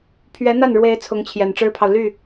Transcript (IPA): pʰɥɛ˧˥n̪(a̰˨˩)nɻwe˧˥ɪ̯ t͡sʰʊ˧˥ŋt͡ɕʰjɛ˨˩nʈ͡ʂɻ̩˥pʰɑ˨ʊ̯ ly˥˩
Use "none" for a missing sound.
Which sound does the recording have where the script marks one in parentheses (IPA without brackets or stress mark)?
a˥˩